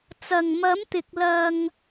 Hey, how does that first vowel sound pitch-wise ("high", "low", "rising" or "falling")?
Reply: low